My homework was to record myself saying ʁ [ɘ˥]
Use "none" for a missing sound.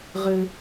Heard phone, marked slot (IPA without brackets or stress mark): ɘ˥